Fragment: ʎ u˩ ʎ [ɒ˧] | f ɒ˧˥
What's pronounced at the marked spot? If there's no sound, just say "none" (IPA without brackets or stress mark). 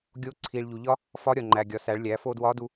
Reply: ɒ˥